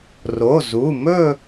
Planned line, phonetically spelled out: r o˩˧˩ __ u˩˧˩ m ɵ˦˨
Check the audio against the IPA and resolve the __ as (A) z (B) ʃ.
A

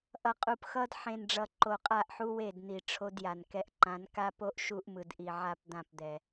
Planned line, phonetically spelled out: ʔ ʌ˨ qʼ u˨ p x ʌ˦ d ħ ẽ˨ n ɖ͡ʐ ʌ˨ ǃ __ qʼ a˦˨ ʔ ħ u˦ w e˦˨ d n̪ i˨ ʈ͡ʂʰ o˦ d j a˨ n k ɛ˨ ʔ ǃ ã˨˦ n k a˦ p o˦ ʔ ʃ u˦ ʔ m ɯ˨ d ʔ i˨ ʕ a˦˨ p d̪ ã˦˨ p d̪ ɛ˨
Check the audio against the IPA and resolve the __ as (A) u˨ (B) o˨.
B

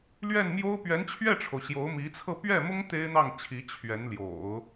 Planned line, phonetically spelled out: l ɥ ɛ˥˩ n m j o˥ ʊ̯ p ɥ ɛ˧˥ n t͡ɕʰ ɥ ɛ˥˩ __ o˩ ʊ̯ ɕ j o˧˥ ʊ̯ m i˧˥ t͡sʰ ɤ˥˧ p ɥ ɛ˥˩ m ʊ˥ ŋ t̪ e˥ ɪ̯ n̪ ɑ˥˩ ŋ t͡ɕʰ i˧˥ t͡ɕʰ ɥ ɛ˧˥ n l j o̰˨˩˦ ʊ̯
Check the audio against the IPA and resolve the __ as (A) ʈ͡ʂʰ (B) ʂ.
A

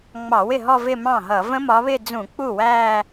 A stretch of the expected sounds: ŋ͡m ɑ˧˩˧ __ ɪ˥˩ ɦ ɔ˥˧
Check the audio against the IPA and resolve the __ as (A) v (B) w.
B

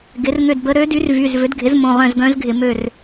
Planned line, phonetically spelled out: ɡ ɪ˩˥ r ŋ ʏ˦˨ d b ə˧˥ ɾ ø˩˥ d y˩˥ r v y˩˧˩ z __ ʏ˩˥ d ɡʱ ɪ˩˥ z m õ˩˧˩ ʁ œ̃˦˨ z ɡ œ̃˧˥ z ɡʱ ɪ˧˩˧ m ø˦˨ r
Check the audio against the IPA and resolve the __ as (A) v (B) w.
A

